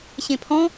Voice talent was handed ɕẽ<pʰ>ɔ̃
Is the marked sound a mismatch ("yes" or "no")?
no